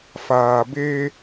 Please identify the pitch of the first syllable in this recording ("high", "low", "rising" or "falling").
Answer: low